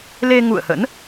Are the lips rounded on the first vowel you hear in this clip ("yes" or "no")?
no